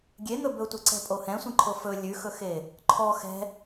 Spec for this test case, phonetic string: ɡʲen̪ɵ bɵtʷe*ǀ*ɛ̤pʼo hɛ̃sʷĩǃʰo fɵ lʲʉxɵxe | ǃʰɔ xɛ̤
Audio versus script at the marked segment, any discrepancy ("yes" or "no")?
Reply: no